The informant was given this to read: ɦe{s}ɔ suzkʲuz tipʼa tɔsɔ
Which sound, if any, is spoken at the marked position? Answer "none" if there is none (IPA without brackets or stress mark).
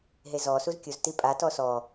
z